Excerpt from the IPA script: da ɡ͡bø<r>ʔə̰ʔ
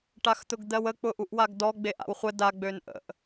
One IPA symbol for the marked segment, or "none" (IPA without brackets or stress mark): n